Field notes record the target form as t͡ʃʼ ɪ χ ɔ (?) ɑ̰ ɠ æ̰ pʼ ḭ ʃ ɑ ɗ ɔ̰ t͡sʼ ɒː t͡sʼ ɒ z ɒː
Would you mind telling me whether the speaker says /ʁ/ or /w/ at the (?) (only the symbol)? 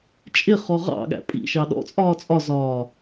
ʁ